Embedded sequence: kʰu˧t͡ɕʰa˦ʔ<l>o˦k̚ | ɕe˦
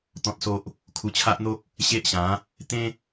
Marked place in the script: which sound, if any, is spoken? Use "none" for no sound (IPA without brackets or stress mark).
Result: n̪